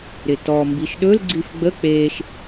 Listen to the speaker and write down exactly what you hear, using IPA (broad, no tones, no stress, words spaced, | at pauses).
ɾɪtɔ mbiʃɗɵl ɡ͡ǀifɡ͡bə k͡peːʃ